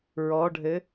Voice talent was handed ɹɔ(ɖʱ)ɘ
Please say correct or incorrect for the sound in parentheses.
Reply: correct